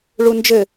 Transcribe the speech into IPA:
ɭ u n d͡ʒ ɘ

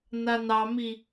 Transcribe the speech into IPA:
n a n ɑ m i

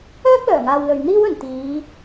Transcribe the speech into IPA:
œː˥ k̚ l œː˨˩ ŋ aː˨ w l ɵ˨ ɥ n̪ iː˥ w ɵ˨˩ n t̪ iː˨˧

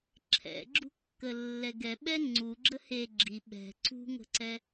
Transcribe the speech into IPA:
ǁʰ ɛ̰ ɡ͡ǁ ṳ kː ə lː ɛ ɡ ɛ ɓ ɛ ŋ͡ǀ u ɡ͡ǁ ə h e ɡ͡ǁ i ɓ ɛ̤ ǀ ṳ ŋ ə̤ ǀ ɛ

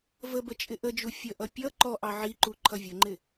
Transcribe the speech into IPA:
v ə b ə t͡ʃʼ ɪ ʔ ə d͡ʒ u fʲ ə ʔ ʌ pʲ ʌ ǃ ɔ ʔ ɑ ʕ i ǃ u ǃʰ ʌ vʲ ə ŋ͡ǃ ɪ

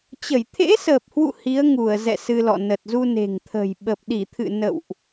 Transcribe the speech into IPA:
t͡ɕ ə˧˩ j t̪ʰ ḛ˧˥ s əː˨˩ p̚ h w ṵ˧˨ h i˨˦ ə̯ ŋ u˧˩ ə̯ z ɛ̰˧˨ s ɨ˧ l ɔ̰˧˨ n ə˨˩ t̚ z u˧ n e̤˨˩ ŋ t̪ʰ ə̤˨˩ j ɓ ə˨˩ p̚ ɗ i˧˩ t̪ʰ ɨ̰˧˨ n ə̰˧˨ w ʔ

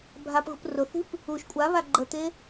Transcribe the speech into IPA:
bʱ a p ɣ ṳ p r ʊ θ i̤ p | u ʃ kʷʼ a β a ɡ͡ǃ ə t̪ e

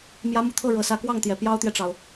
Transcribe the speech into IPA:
m j ä˧˥ m u˨˩ t̪ʰ ɤ˥˩ ɻ ɤ˨˩ s ä˧˥ k w ɑ˥˩ ŋ t̪ j ɛ˨˩ p j ɑ˥ ʊ̯ t̪ j ɛ˨ ʈ͡ʂ ɑ˩ ʊ̯

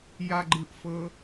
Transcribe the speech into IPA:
j a ɡ͡ǃ ɯ ʔ f ɤ

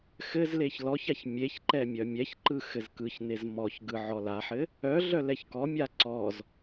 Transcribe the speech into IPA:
x ɘ z l e ç l ɔ ç a ç mʲ e ç ǃ ɛ mʲ œ mʲ ɛ ç ǃ ɯ x ɘ z k ɯ ç n e z m ɔ ç ɡ ɯ ʕ ɔ l a ħ ɘ | œ ɮ œ l ɛ ç k ɔ mʲ a ǀ ɔ z

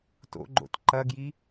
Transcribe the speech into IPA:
t o̰ ɡ͡ǃ o̰ t ǃ ɐ ɡ j i

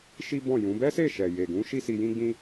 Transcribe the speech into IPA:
ʃ i˦ b ɔ̃˦˨ j ũ˨˦ b ɛ˦ s e˦˨ ʃ ɛ˨ j e˨ ɡ ũ˨˦ ʃ i˦ s i˧ j ĩ˦ ɡ͡b ĩ˦

